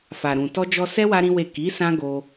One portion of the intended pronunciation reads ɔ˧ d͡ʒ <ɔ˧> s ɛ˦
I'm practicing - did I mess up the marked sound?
no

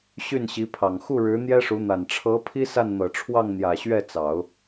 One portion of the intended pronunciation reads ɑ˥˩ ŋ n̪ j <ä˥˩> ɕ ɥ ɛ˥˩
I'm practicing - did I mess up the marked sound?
yes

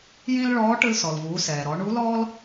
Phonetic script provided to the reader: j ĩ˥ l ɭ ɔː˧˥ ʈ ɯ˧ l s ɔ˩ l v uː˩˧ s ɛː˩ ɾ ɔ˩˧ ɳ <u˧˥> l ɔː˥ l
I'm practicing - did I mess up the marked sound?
no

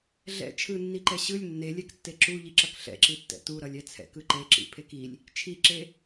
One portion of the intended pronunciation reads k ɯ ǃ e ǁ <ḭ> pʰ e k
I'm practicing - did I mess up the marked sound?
no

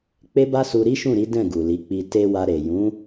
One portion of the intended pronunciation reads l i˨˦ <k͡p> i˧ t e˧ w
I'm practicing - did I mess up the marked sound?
no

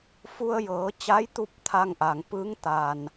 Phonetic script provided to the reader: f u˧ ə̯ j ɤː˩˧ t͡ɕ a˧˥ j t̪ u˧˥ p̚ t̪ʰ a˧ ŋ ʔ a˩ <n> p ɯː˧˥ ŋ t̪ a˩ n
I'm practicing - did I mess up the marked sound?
yes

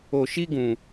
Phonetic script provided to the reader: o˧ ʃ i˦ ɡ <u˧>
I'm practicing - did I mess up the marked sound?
yes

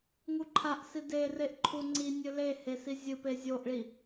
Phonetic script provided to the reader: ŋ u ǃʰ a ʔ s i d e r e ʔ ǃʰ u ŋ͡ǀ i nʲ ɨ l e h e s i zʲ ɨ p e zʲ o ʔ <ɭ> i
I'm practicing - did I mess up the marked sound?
no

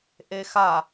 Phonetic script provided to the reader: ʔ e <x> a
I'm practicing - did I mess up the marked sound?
no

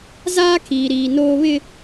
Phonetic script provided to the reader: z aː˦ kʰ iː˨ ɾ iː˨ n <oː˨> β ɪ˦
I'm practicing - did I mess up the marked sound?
yes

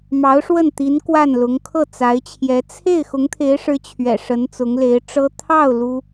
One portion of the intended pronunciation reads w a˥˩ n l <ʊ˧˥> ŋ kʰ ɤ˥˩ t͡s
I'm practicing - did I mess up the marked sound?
no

